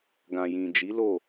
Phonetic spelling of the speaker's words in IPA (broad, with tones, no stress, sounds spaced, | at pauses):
ɡ ã˨ j ĩ˨ d͡ʒ i˨˦ l o˦˨